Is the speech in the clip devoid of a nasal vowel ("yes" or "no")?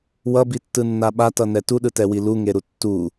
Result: yes